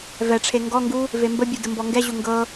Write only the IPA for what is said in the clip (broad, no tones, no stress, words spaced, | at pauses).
vɛʈ͡ʂʰe ŋɡɔŋɡu | vembəbʲu dəmbɔŋɡɛʑu ŋɡɤ